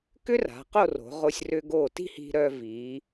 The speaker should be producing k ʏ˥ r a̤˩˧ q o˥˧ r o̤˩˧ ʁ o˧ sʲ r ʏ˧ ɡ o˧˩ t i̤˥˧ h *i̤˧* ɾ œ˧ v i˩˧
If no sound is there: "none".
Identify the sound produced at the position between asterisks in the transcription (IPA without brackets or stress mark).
i̤˧